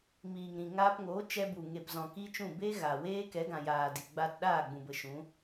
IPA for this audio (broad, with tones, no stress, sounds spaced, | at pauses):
m iː˨ ŋ ɾ ĩ˨ ŋ aː˧ p ŋ oː˨˦ t͡ʃ ɛ˧ b u˨ ŋ e˨ p z ɔ̃˨ k i˦ t͡ʃ ũ˦˨ b e˦ ɣ a˨ w eː˦ k ɛ˨˦ ɡ ã˨ j aː˨ d i˨ ɡ͡b a˧ t ɗ aː˦˨ ɡ͡b ũ˨ b ə˨ ʃ ũ˨˦